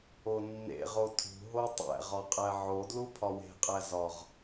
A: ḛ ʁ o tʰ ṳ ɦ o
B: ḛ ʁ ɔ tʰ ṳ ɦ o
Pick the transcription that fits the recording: A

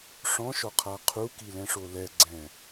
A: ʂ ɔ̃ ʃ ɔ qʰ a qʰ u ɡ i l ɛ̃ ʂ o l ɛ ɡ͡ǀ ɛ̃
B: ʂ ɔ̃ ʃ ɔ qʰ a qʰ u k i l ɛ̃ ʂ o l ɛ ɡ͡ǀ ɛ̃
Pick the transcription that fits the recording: B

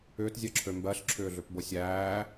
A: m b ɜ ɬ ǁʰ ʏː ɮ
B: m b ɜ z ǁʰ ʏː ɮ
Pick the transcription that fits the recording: A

